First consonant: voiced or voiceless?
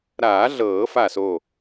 voiced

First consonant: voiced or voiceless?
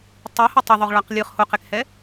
voiceless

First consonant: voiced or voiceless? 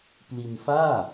voiceless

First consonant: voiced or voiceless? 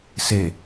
voiceless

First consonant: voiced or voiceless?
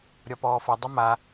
voiced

